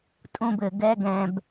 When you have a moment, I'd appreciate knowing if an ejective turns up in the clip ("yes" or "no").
yes